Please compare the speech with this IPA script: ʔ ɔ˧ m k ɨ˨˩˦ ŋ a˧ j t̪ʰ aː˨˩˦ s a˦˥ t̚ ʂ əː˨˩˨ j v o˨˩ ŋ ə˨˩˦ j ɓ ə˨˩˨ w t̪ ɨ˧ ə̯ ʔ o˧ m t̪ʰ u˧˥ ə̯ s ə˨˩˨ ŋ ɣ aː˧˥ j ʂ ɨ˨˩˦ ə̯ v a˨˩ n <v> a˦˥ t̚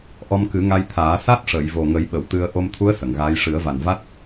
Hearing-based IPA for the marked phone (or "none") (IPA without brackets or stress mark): v